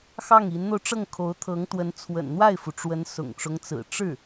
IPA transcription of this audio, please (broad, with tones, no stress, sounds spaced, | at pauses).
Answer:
x ɑ˥˩ ŋ i˧˥ n n̪ o˧ ʊ̯ ʈ͡ʂ ɤ˥˩ ŋ kʰ o˧˥ ʊ̯ t̪ʰ ɤ˧˥ ŋ t̪ w ə˧˥ n t͡sʰ w ə̰˨˩ n n̪ w a˥˩ ɪ̯ f u˩ ʈ͡ʂ w ə˧˥ n s ʊ̰˨˩ ŋ ʈ͡ʂ ʊ˦ ŋ t͡s ɹ̩˨˩ ʈ͡ʂ ɻ̩˥˩